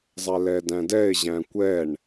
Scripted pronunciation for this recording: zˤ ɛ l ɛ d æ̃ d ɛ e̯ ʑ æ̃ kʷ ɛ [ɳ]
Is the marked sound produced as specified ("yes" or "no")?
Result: yes